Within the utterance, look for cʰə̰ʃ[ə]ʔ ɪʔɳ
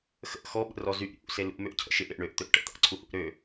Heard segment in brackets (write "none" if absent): ɪ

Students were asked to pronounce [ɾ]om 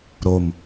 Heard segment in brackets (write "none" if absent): ɾ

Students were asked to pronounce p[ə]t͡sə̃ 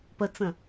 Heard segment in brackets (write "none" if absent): ə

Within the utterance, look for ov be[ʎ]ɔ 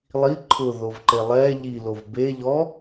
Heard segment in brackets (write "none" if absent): ʎ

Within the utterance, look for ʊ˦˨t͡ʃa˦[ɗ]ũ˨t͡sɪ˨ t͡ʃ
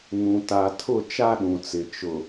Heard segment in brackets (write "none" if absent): ɗ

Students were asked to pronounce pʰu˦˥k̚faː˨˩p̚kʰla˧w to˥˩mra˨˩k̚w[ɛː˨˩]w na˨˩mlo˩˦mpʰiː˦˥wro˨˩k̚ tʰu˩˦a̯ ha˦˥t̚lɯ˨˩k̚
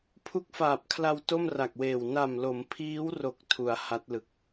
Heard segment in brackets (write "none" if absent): eː˨˩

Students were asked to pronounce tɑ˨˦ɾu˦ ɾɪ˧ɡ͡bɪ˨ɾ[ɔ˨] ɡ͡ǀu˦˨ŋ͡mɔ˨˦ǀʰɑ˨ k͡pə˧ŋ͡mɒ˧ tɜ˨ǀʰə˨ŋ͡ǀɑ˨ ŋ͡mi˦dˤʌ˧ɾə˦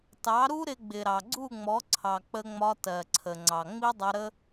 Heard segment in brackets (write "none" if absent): ɑ˨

